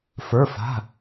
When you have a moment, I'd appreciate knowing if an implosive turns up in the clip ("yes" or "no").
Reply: no